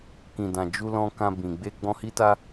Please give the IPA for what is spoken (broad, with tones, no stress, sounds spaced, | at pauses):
k ĩ˨ d ã˨ d͡ʒ u˧ l ɔ̃˧ k ã˧ b ĩ˨ ɡ͡b e˧ ɡ͡b ɔ̃˦ h i˦ t a˦